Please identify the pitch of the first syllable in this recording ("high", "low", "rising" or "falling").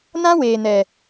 high